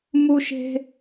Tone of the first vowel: high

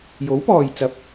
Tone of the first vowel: rising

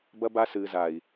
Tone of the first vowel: high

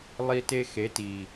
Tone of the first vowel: high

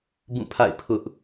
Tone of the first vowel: falling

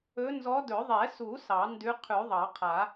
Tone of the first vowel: rising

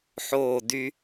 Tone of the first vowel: falling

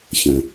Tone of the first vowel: low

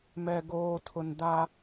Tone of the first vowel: low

